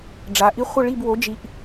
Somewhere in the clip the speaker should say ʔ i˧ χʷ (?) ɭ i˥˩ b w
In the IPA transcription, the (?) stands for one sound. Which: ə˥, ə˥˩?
ə˥˩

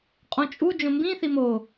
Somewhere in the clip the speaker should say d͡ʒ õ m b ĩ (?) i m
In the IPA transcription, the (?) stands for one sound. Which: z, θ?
θ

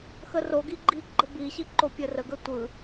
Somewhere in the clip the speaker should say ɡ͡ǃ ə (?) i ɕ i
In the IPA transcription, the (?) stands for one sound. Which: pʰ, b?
b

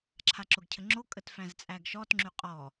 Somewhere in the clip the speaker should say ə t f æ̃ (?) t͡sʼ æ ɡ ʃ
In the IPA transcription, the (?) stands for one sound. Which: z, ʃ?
z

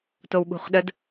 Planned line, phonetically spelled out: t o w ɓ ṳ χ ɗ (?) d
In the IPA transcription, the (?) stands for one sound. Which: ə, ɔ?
ə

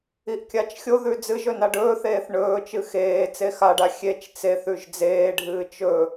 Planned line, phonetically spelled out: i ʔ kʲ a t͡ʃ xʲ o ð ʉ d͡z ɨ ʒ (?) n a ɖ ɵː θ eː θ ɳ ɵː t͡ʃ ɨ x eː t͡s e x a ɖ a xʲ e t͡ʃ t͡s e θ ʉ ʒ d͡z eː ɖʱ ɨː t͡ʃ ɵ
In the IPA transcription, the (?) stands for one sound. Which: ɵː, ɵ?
ɵ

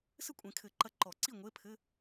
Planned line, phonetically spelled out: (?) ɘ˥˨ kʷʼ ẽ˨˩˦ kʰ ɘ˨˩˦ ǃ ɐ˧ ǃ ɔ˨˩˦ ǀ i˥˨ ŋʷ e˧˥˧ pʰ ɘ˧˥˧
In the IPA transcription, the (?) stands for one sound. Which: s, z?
s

